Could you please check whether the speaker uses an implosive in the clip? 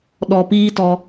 yes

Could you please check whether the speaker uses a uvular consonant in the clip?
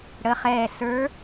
yes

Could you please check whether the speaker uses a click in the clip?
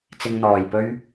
no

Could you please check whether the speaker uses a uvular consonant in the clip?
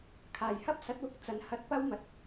no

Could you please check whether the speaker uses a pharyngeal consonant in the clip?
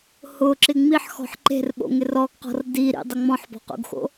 yes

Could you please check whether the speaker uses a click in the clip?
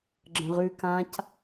yes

